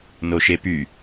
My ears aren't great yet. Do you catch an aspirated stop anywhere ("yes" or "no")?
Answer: no